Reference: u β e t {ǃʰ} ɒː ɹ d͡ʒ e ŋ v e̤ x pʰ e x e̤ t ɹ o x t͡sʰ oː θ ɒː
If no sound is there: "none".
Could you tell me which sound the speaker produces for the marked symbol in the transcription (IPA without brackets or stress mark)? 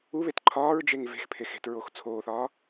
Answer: ǃʰ